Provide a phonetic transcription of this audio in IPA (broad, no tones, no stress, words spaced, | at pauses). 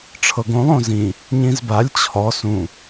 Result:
ʈ͡ʂʰɤɡõlˠ õzĩ | ɲĩzbalʲ t͡ɕʰɔ sũ